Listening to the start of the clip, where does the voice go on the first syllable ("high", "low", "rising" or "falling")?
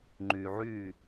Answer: low